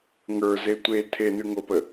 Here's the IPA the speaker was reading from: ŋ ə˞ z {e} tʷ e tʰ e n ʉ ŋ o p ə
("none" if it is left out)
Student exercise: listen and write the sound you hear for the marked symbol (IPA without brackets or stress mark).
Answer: e